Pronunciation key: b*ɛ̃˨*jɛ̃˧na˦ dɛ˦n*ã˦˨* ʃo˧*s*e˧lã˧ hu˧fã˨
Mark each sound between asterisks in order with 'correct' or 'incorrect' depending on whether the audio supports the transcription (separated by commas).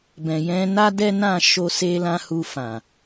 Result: correct, correct, correct